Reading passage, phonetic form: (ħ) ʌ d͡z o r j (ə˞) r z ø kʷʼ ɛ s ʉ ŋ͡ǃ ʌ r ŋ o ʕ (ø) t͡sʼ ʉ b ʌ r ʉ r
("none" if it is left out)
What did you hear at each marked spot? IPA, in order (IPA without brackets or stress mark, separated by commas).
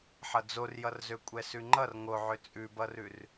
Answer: ħ, ʌ, ø